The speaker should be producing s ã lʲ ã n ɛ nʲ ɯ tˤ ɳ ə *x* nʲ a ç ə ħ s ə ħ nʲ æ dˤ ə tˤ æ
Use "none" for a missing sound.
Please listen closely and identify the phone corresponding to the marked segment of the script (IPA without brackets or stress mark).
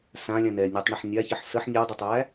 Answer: ħ